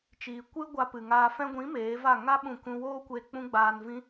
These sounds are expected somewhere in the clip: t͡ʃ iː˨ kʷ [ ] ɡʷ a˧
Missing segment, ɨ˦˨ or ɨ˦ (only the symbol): ɨ˦